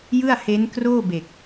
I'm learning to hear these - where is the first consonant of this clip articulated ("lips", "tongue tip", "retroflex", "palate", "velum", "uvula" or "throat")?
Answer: palate